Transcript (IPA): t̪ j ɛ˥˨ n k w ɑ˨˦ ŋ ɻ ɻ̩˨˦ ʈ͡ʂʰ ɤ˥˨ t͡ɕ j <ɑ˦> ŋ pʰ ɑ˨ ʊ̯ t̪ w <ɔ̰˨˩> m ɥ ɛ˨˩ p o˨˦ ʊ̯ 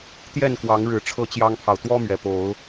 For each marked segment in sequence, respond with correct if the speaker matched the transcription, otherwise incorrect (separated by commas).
correct, incorrect